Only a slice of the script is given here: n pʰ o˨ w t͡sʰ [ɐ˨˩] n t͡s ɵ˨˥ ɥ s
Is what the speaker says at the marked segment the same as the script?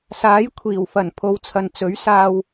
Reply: no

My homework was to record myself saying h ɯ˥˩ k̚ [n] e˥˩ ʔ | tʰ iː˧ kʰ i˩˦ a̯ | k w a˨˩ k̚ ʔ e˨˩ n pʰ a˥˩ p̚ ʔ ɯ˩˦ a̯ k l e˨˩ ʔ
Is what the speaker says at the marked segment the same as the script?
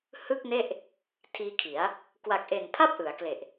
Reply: yes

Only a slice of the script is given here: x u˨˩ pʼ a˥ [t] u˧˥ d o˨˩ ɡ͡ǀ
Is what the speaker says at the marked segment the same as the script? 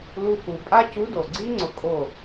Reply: no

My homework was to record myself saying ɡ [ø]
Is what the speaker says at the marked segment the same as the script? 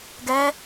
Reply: no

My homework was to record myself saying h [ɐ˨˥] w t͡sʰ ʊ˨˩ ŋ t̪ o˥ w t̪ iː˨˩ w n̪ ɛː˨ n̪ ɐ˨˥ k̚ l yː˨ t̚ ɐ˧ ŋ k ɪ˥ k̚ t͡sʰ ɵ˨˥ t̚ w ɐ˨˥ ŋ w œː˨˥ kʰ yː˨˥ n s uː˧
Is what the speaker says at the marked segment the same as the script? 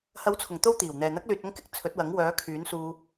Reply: yes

